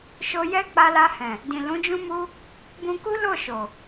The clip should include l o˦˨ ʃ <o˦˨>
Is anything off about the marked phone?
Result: yes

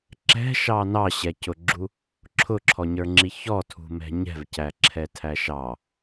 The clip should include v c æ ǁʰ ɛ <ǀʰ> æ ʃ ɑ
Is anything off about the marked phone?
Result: yes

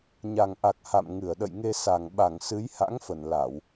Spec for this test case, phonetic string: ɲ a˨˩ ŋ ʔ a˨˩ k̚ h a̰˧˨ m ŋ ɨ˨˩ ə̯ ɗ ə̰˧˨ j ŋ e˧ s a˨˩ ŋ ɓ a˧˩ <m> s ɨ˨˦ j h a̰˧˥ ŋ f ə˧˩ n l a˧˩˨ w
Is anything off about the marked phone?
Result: yes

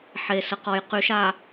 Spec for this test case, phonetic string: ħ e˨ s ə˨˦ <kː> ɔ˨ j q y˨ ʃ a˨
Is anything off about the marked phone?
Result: yes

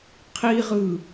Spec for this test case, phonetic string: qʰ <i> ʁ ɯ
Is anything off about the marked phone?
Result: no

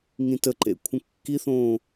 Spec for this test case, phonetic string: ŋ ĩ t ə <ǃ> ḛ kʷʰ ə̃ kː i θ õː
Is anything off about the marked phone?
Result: no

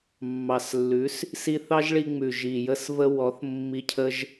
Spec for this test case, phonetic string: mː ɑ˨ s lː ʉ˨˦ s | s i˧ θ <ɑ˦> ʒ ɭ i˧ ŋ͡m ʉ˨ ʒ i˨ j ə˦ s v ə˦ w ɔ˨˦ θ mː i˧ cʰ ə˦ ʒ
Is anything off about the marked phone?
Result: no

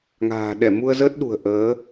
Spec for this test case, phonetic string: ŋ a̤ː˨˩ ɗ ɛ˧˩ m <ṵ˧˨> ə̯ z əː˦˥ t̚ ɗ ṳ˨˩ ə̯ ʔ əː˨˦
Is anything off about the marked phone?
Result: yes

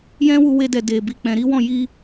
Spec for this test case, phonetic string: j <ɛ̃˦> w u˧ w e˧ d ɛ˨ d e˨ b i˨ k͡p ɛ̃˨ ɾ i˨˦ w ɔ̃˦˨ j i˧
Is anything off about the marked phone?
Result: no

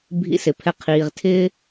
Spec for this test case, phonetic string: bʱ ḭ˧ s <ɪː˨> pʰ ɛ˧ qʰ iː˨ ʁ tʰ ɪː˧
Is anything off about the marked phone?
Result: yes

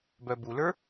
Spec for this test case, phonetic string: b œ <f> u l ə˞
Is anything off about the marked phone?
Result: yes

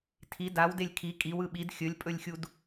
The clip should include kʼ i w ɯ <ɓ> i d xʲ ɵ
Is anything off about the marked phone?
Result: no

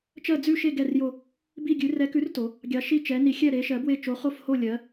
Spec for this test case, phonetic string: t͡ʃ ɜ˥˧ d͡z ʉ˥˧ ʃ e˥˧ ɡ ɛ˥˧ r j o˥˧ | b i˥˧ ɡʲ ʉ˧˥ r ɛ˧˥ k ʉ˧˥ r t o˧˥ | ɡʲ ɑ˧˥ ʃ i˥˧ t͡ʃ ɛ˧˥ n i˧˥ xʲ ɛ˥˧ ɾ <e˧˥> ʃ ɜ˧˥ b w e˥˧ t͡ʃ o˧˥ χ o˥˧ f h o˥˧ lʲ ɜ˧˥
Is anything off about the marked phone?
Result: no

